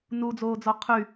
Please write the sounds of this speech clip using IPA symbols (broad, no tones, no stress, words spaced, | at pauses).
nud͡zoːd͡zɔ qʰy